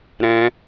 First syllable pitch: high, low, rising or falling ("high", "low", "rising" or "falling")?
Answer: high